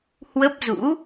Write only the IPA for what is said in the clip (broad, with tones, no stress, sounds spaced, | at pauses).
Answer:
h w ə˦˥ p̚ z ṵ˧˥